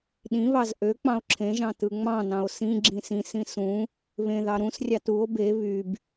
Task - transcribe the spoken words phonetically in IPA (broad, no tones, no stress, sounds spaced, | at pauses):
ɗ ĩ β ɑ z ʔ ø k͡p ɑ̃ o̯ ǁʰ ẽ ʒ ɑ̃ t ɯ ŋ͡m ɑ̃ n ɑ̃ o̯ s ĩ ɡ͡ǁ ĩ s ĩ s ĩ s ũ | β ẽ ð ɑ ɾ ũ s rʲ ɑ t u o̯ b e β y b